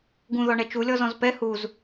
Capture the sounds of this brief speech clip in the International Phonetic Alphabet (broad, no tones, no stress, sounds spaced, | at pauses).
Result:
ɡ ũ ð ɔ ɳ ɛ t͡ʃ u lʲ ɔ z ɔ̃ z p ɛ h u z